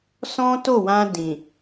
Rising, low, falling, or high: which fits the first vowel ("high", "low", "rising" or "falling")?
high